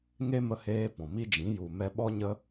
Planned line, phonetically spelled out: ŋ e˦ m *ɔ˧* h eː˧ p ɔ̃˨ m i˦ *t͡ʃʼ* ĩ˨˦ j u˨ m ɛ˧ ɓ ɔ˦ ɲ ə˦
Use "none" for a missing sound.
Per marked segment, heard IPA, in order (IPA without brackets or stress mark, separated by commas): ə˧, d͡ʒ